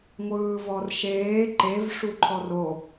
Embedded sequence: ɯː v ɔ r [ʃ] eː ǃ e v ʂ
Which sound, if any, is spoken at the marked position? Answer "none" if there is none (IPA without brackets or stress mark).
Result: ʃ